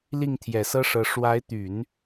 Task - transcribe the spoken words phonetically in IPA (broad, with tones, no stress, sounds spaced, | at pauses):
l i˥˩ ŋ t̪ʰ j ɛ˨˩ s ɤ˥ ʂ ɤ˧˥ ʂ w a˧˥ ɪ̯ t̪ y˨˩˦ n